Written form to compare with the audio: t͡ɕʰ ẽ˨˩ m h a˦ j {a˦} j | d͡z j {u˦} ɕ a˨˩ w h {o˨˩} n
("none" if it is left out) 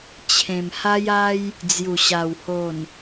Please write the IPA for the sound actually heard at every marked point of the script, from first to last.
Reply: a˦, u˨˩, o˨˩

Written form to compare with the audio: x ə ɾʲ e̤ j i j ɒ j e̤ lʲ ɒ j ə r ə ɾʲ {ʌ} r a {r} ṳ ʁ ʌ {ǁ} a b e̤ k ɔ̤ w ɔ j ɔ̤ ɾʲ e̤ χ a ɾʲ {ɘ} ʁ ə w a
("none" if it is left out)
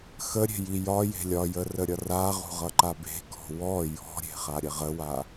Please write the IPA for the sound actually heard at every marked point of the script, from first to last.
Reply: ʌ, ʁ, ǃ, ɘ

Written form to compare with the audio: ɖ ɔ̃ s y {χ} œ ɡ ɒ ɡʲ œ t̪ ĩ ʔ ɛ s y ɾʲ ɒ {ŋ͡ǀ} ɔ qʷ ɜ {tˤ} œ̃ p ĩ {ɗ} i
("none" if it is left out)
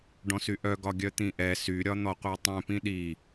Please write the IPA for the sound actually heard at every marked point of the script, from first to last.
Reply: ʔ, n̪, tˤ, ɗ

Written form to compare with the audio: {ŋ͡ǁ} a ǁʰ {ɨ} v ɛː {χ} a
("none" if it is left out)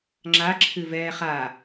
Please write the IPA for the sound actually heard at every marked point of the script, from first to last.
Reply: ŋ͡ǁ, ɨ, χ

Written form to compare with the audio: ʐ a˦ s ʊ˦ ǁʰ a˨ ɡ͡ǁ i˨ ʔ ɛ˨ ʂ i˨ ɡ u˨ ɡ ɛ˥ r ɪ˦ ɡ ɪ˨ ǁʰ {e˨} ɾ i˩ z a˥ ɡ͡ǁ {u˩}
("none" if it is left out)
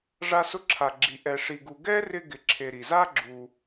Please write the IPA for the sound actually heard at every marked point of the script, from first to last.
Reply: e˨, u˨

